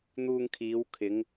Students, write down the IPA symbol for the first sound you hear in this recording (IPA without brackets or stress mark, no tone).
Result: n̪